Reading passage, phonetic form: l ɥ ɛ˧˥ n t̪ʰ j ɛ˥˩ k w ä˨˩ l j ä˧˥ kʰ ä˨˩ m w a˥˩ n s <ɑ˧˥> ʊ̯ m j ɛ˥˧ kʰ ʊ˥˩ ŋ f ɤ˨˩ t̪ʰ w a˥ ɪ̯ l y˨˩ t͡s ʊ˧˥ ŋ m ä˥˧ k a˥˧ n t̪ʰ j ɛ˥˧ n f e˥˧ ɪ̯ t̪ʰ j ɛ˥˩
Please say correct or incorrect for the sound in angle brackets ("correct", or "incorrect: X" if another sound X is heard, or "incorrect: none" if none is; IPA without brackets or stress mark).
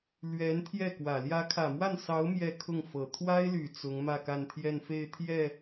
correct